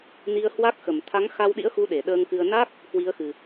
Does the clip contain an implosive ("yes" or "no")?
yes